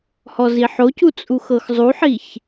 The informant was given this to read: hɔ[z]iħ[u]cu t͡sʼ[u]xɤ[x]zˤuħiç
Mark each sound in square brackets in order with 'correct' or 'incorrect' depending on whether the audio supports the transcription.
correct, incorrect: o, correct, correct

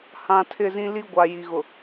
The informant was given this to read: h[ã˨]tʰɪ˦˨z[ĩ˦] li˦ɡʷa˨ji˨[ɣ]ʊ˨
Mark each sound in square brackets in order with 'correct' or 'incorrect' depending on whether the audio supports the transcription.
correct, correct, correct

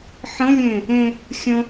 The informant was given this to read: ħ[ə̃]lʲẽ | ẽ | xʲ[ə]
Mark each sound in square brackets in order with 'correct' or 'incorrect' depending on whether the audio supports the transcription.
correct, incorrect: ə̃

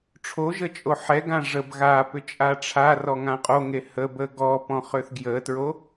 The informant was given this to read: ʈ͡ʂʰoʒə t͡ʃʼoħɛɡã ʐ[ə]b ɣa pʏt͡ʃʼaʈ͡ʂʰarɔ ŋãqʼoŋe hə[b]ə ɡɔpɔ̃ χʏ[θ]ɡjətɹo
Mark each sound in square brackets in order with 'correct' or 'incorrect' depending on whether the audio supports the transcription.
correct, correct, correct

